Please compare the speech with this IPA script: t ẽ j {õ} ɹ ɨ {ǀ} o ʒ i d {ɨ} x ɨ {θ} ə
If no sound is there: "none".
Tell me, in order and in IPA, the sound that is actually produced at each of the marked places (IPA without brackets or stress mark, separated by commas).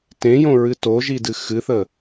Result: õ, t, ɨ, θ